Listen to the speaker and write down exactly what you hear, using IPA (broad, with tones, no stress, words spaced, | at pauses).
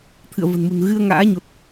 t̪ʰɨ̰˧˨ə̯və̤˨˩nmṳ˨˩n ɣɨ˧ə̯ ŋa̰ː˧˥ɲo˨˩t̚